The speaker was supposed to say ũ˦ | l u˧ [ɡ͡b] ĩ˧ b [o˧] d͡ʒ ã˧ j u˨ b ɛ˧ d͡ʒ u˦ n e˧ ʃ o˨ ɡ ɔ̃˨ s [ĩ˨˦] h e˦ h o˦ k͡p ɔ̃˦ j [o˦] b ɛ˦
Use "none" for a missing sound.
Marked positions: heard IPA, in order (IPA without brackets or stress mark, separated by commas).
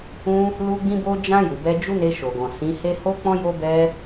ɡ͡b, o˧, ĩ˨˦, o˦